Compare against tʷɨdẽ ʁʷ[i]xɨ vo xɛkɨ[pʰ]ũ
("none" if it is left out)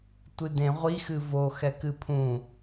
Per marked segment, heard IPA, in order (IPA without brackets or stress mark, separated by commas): i, pʰ